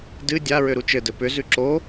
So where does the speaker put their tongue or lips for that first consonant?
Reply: tongue tip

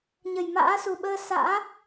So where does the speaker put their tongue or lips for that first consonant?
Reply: palate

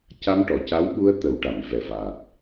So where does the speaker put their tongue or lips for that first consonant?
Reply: palate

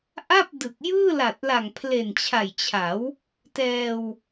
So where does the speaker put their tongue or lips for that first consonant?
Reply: throat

